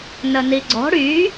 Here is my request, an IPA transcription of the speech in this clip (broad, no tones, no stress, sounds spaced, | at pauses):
n ə n i ɡ͡ǀ ɔ̤ ɽ y